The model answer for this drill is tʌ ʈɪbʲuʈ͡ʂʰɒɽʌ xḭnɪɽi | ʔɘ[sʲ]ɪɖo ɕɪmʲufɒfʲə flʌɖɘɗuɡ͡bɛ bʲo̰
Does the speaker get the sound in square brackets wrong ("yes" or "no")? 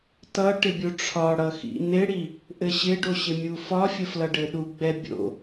yes